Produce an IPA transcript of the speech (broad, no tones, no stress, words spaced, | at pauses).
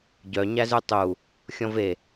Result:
ɟœ ɲæzʉtˤu | xʲɔ̃ve